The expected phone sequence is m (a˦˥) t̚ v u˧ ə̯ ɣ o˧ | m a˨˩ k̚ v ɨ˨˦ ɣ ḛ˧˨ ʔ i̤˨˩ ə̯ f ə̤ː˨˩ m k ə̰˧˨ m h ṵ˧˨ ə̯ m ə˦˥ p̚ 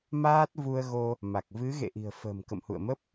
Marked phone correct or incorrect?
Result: incorrect